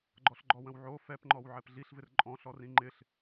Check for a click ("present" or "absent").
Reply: present